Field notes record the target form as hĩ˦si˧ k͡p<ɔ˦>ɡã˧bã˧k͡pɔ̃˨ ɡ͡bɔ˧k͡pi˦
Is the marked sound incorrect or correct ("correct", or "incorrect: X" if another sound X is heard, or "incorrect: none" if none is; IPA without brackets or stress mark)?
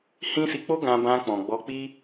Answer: incorrect: o˦